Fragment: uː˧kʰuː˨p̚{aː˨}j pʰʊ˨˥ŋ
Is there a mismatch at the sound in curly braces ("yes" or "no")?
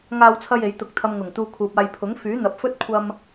yes